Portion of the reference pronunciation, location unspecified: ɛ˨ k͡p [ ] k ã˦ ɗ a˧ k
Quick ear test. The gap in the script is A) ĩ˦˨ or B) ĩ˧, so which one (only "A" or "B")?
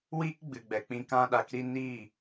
B